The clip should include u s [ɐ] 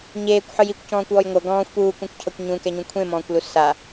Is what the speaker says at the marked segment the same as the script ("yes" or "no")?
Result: no